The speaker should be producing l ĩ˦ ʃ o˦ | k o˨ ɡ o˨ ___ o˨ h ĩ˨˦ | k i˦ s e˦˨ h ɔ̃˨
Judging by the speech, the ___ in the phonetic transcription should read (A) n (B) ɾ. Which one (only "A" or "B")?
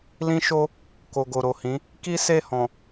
B